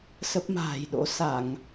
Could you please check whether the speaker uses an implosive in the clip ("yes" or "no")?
yes